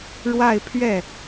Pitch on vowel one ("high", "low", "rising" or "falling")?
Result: falling